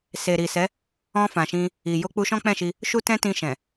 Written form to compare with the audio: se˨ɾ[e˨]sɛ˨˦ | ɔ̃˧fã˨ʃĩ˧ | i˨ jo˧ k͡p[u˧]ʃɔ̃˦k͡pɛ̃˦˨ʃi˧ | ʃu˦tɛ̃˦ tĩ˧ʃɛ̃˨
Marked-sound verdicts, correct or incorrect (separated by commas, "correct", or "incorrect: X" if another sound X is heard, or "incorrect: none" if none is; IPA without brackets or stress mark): incorrect: i˨, correct